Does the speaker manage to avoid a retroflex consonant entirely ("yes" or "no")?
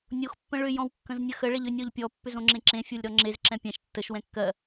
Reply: no